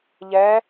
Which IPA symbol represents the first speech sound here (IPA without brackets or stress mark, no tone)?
ʎ